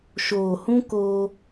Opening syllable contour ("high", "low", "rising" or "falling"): low